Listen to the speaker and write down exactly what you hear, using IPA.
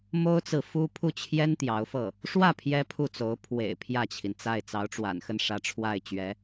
mo˥ʊ̯t͡sɹ̩˨fu˥ pʰu˥˩t͡ɕʰjɛ˥n t̪jɑ˧˥ʊ̯fɤ˥˩ | ʂwä˥˩ pʰjɛ˥pʰu˥˩t͡so˧˥ʊ̯ pʰwḛ˨˩ɪ̯ pʰjä˥˩t͡ɕʰi˩nt͡sa˥˩ɪ̯ t͡sɑ˧˥ʊ̯ʈ͡ʂwa̰˨˩nxə˥˩n ʂä˧˥ʈ͡ʂʰwa˥˩ɪ̯t͡ɕɥɛ˧˥

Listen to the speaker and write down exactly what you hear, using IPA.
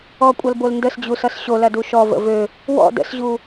ɔkʷʼʌlbol ndəsd͡ʑusʌs ɕolɐdu ʃɔvə̰ vø | wɔ̰ də̰sʑu

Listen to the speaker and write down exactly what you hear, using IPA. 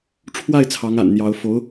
ʈ͡ʂʰwa˥˩ɪ̯ t͡sʰɑ˧˥ŋa̰˨˩nn̪jɑ˧˥ʊ̯ fo˧˥ʊ̯

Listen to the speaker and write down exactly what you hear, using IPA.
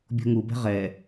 bʲo̤ŋubɛ̤ ʁɛ

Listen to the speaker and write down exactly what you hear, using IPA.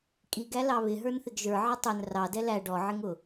kʼiɡæ lɑβɪ ɦə˞nθɪɡʒə˞ ʕɪtˤʊn rɑdɛ læ ɖɔʕɪŋʊ

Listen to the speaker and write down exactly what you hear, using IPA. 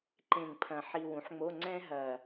ǃẽ˨˩ŋ pʰɐ̃˨˩ ħi˧wũ˩˥ħŋ͡mo˧˥˧ ŋ͡ǀɛ̃˥ɦɐ˨˩

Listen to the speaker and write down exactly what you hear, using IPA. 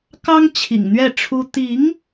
kɑ˥ŋ t͡ɕʰḭ˨˩ŋn̪ɥɛ˥˩ʈ͡ʂʰu˥ t̪i˧˥ŋ

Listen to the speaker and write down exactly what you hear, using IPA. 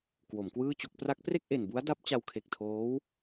kwo˩˦mkwɯː˥˩t͡ɕo˥˩k̚ pra˦˥k̚pre˥˩k̚ʔe˨˩nbu˦˥a̯ da˦˥p̚t͡ɕa˧wkʰe˨˩k̚ tʰoː˦˥w

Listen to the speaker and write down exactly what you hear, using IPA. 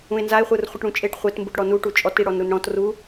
ũe̯nzae̯χʷɯr χʷɯʈɽũt͡ʃʼeʈ χʷetmbuʈ ɽɔnu ʈut͡ʃʼɔti ɽɔnɾunɽɔ̃t ru

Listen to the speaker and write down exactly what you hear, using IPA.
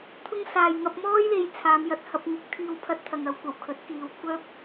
t̪ʰʊ˥ŋ saː˨jŋɐ˧p̚mɔː˥jle˨˧j t͡sʰaː˨˧mjɐ˧t̚hɐ˧p̚ ŋɪ˨˥k̚t̪ʰiː˧wpʰɐ˧t̚ t̪ʰɐ˨ŋɐ˨˧wkʷɐ˨˩w kʰɵ˨˥t̚kiː˨˧wkʷʰœː˥p̚

